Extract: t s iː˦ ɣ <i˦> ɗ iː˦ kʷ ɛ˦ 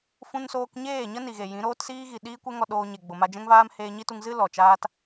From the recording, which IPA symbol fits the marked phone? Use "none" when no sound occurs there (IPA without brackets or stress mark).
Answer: i˨